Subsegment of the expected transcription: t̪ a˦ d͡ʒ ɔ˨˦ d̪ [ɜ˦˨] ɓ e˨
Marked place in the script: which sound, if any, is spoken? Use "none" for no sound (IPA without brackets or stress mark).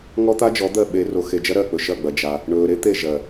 ɜ˦˨